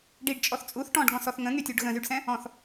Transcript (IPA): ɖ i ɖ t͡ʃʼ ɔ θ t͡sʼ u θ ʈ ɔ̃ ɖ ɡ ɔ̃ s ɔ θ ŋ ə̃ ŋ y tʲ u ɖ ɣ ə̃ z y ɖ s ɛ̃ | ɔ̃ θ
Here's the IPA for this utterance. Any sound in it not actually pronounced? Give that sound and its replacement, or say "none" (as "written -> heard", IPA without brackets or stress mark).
none